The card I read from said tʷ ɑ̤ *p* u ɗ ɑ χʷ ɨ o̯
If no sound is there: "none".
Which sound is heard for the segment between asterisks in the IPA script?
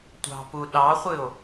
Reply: p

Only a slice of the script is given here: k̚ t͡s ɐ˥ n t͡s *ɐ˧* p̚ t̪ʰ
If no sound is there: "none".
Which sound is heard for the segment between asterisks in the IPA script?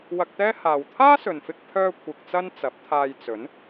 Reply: ɐ˨˥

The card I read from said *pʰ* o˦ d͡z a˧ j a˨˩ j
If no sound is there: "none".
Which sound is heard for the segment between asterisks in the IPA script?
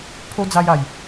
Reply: pʰ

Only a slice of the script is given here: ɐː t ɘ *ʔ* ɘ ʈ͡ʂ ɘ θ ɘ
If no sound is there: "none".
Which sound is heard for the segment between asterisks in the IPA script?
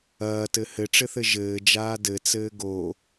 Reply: h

